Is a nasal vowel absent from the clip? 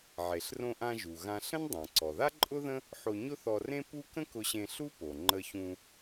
no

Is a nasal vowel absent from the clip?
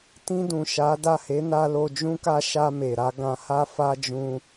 no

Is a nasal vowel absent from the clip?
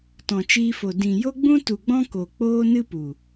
no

